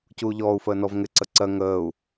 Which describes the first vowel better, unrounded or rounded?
rounded